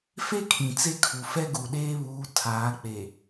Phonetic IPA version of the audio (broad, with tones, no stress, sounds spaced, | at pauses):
f e˦ kʰ ĩ˨ t͡s e˦ kʰ u˨ f ɛ˦ ɡ u˨ ɗ eː˦ β uː˨˦ tʰ aː˨˦ k͡p e˨